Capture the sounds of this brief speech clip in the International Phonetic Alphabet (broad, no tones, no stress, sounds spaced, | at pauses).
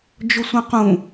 d͡ʒ ʊ sʷ ɐ̃ q ũ